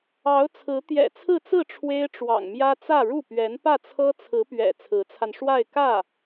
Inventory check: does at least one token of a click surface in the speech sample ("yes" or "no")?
no